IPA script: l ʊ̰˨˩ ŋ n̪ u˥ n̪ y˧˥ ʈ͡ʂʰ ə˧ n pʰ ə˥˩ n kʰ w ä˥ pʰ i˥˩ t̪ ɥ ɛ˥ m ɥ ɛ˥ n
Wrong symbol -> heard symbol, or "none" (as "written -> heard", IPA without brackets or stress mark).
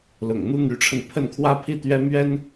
none